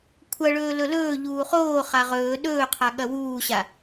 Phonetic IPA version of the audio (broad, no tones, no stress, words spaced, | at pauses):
kʷʰɐɭɵː lɵlɵː ʎuːχoː χaʁɵː ɗɵːqʰa ɠɐwuːɕa